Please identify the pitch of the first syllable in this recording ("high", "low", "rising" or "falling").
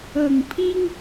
low